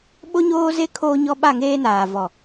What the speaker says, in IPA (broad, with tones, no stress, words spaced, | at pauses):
ɓo˦ɲoː˦ze˦ kʰoː˦ɲɔ˦ ɓa˦˨ŋeː˦naː˨vɔ˨